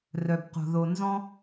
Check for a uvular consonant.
present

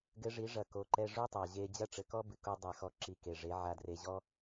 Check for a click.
present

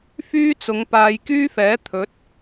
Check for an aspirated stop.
present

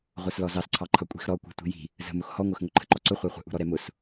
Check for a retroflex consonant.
absent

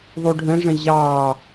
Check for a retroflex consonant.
present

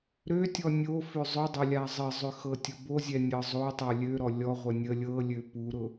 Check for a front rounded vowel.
present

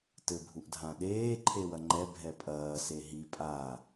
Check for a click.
present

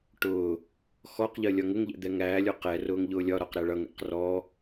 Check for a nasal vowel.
absent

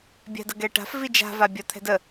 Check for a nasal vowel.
absent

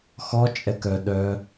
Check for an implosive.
present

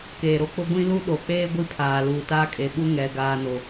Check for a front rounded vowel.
absent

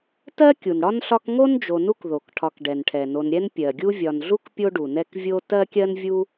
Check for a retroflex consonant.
present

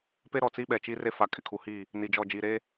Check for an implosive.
present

